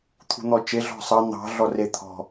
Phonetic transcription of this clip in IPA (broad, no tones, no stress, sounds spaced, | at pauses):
t̪ʰ ṳ n̪ ɔ t͡ʃ e ɮ ɔ̤ sˤ ɑ n̪ ɑ̤ ɮ ɔ r e t̪ʰ ɔ̤